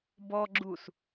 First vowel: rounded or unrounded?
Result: rounded